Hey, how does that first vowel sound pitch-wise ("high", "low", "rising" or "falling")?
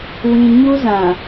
low